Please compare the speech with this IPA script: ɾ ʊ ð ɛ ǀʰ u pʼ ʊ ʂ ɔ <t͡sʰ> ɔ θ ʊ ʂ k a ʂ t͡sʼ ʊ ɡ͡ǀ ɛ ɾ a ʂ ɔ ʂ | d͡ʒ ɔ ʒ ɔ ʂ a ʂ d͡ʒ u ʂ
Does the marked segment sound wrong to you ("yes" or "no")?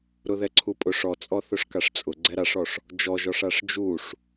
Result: yes